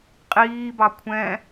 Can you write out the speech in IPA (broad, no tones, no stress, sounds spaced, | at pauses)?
qʼ iː b ɑ kʷʰ ɛ̃